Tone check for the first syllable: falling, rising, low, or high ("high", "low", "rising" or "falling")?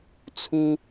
high